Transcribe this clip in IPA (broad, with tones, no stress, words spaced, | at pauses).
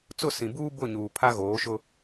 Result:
t͡sʊ˦˨sĩ˨buː˦ bʊ˦˨ɲuː˨ pʰa˦ɣoː˨˦ʃʊ˦